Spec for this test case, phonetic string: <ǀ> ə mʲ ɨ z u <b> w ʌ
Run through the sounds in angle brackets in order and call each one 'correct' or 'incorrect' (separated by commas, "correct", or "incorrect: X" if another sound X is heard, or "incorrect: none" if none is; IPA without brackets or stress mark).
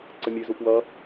correct, incorrect: p